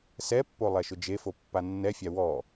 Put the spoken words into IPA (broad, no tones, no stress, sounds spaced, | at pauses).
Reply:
s ɛ pː o lˠ ɛ ʃ ʊ d͡ʒ e f o pː a nː ɛ fʲ a w ɔ